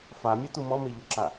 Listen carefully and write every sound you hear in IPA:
f a mʲ ɛ t u m ɔ m e ʎ ʊ ǁ a

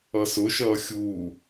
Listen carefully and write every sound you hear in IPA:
ʌ s ʊ ʃ ʌː xʲ uː

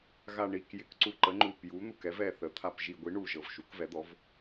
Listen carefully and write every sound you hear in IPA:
ɣ a˨˩ ɳ i˨˩ k j ɪ˩˧ k ǀ u˨˩ ǃ ə˩˧ ŋ͡ǃ u˨˩ p j u˩˧ n̪ u˨˩ k ɛ˩˧ v ɛ˨˩ θ ə˩˧ t̪ʰ a˨˩ p ʒ i˨˩ ɡʷ i˩˧ ɳ u˨˩ ʒ ɤ˨˩ v ʃ u˩˧ k v ɛ˩˧ d̪ ɔ˩˧ v

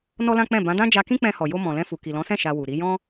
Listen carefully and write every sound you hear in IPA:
n ɔ˦ l ã˦ k͡p ɛ̃˦˨ b ã˨˦ d ã˦ d͡ʒ a˧ k ĩ˦ k͡p ɛ̃˧ h ɔ˨ j o˧ m ɔ̃˨ l ɛ̃˧ f u˨ k i˨ l ɔ̃˨˦ s ɛ̃˦˨ ʃ a˧ w u˨ ɾ i˨˦ j ɔ̃˧

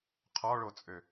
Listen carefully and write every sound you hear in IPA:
qʰ ɔ ɭ o t͡sʼ ø

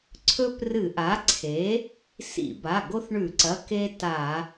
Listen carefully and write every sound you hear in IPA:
ǀʰ ɵ˦ p r ɨ˧˩˧ ʔ a˩˥ ǀʰ e˩˥ | s ḭ˧˩˧ b a˩˧˩ ɡ o˦ θ ɳ ʉ˧˩˧ ǀ ɐ˩˧˩ k e˦ t a˧˩˧

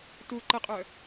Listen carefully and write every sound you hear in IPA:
t u ǃ ə qʼ œ

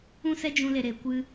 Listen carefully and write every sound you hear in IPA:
ũ˦ s ɛ˦ d͡ʒ ũ˧ l e˨ ɾ e˨ kʷ ɨ˧

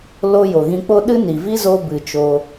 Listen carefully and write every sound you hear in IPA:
l o˧ j o˨ ɣ ĩ˧ k͡p o˦ ɗ ɨ˦ n i˨ v i˦ z o˧ b ɨ˨ t͡ʃ o˧

